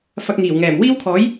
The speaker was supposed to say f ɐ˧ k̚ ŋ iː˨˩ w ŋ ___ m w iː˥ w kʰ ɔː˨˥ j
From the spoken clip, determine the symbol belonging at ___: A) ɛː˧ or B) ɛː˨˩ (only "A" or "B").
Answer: B